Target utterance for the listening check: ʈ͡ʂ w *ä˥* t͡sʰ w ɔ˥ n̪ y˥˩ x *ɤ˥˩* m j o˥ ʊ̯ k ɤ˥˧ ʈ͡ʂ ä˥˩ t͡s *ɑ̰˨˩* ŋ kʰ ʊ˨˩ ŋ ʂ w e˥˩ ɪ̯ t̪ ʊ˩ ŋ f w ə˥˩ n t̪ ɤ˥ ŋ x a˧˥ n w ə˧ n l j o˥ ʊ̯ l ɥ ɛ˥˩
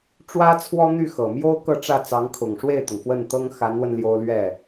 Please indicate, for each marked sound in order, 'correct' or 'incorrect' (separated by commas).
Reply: correct, incorrect, incorrect